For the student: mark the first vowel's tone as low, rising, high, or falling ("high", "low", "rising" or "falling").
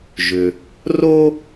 low